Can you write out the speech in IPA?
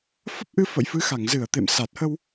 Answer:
f ə˦˥ p̚ ʔ ɨ˧ f ə̰˧˨ j f ɨ˨˦ x a˧˩ ŋ z ɨ˧˩ ə̯ t̪ ḛ˧˨ m s a˨˩ t̚ h ə˧ w

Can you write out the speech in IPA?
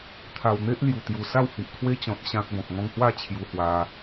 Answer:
t̪ʰ a˨˩ w n̪ e˦ ʔ l j u˨˩ t̪ j u˨˩ s a˥˧ w h i˨ ʔ kʰ w e˦ t͡ɕ ɔ̃˨ t̚ ɕ ã˦ k̚ b ɔ̃˨ p̚ ŋ ɔ̃˧ ŋ h w a˥˧ t͡ɕʰ j u˧ h w a˧

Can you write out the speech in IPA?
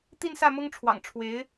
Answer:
t̪ i˥˧ n s ä˥˩ m ʊ˥ ŋ ʈ͡ʂʰ w ɑ̰˨˩ ŋ ʈ͡ʂʰ w e˧˥ ɪ̯

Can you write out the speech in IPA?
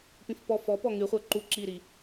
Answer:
p ĩ f p ɔ f ɔ p ɔ ŋ y χʷ ə˞ ǃ u ǁ i ɾ i

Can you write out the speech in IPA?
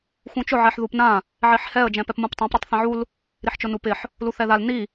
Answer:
x ũ t͡ʃ ʊ ʕ ɛ ħ ð u p n ã | ʕ i ħ h ɛ ə̯ d͡ʒ ɛ̃ p ɛ p m ũ p tˤ ã p ɾ u tˤ θ ɛ̃ ʕ u l | ɾ i ħ t͡ʃ ʊ n u p ɪ ħ | l u θ ɛ ð a l n i

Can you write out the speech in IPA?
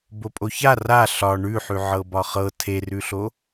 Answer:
b o pʼ o ç a r a ɬ ɒ ɳ ʉ ħ ʉ ʕ ɤ b ɒ χ ɤ tʰ e r ʉ ɬ o

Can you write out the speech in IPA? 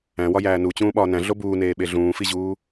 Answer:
æ̃ w ɒ j æː n u t͡ɕ ũː ɓ ɒː n æ̃ ɮ o b uː n eː ɓ e ɮ ũː f i ʑ uː

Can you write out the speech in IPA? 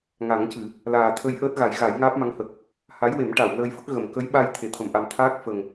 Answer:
ŋ a˨˩˦ ŋ c ɨ˨˩˨ | l aː˨˩ t̪ʰ ə˧ j ʔ əː˦˥ t̚ ɣ a˨˩˦ j ɣ a˨˩˦ j ŋ aː˦˥ p̚ m a˧˥ ŋ h ə˨˩ k̚ | h a˧˥ j w e˨˩˦ m ʈ a˨˩˨ w l əː˧ j f ə˦˥ k̚ ɣ ə˨˩˨ m k ə˧˥ j ɓ a˧ j t̪ʰ e˨˩˨ t̪ʰ ə˨˩˨ m ʔ a˨˩ m t̪ʰ aː˦˥ k̚ f ə˨˩ ŋ

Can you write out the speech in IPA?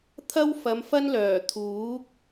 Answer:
t̪ʰ ɐ˥ w f ɐ˨˧ m f ɐ˥ n l œː˨˩ t̪ʰ uː˨˥ k̚

